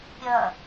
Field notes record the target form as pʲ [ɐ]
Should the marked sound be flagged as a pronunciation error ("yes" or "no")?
no